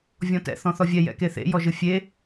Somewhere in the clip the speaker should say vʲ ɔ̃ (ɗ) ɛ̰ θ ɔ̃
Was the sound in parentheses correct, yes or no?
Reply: no